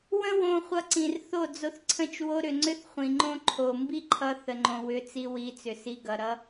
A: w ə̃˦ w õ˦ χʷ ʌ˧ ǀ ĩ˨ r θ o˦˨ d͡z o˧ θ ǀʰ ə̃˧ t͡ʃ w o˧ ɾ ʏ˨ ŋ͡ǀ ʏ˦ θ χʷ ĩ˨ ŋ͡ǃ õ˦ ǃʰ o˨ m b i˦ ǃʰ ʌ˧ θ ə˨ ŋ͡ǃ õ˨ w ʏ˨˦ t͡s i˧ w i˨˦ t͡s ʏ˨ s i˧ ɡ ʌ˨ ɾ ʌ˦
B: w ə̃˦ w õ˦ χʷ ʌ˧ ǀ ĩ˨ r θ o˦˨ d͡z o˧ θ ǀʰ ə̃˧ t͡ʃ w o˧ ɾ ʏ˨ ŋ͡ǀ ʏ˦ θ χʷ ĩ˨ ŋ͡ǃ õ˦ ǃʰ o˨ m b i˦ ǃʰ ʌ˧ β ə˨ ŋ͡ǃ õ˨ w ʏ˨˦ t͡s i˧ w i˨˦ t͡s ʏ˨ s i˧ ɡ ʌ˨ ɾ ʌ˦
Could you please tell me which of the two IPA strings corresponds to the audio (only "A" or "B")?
A